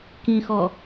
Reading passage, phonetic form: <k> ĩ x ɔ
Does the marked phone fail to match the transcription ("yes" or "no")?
no